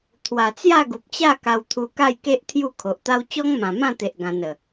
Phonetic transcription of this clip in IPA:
t̪ʰwa˨˩t͡sja˥˧ɡu˨p̚t͡ɕa˥˧ ka˧wt̪ʰu˧ka˥˧jke˦ʔ t̪ʰju˥˧kʰo˨ʔ t̪a˦w t͡ɕɔ˦ŋmã˨˩mã˥˧t̪e˨ʔ ɡã˧nə˨˩

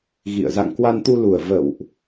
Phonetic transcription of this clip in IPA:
ɣḭ˧˨ə̯ za̰˧˨ŋkwa˧nt̪u˧lu˨˩ə̯ və̰˧˨wʔ

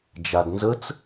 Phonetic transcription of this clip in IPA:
d͡ʒadnzət͡s

